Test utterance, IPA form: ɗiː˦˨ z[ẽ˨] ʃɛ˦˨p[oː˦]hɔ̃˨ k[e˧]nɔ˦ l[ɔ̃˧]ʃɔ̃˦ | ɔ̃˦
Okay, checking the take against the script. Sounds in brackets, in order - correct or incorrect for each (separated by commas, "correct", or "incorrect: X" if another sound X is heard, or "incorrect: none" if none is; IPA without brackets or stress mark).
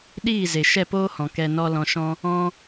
incorrect: e˨, correct, incorrect: ɛ˧, correct